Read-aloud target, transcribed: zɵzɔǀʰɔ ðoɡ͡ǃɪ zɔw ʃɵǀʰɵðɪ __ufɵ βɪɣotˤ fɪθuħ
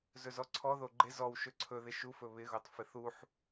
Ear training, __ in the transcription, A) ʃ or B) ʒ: A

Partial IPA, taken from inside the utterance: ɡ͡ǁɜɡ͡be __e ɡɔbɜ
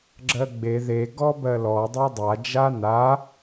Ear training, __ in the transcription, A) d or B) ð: B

